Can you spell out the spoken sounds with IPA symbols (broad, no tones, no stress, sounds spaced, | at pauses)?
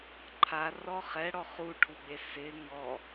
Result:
ǃʰ a r ɔ χ ɛ ɽ ɔ χ u ʈʰ u ɡ͡b e s ɪ ŋ ɔ